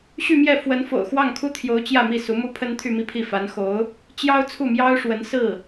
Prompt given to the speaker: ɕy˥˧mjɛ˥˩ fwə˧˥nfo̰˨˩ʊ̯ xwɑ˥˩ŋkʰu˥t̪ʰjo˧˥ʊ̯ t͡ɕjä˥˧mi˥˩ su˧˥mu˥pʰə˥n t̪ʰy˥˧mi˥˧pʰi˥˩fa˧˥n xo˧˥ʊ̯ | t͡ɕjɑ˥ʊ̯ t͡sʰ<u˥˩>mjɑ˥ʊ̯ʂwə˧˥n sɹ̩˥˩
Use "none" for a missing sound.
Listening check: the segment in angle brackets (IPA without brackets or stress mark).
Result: u˥˩